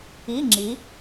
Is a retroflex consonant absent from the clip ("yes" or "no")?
yes